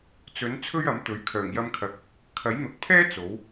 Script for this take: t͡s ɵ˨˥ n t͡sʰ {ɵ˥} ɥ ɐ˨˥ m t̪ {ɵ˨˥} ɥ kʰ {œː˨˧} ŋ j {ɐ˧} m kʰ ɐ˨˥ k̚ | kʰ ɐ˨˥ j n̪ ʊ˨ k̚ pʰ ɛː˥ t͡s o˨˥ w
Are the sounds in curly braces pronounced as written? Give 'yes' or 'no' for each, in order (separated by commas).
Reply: yes, yes, no, yes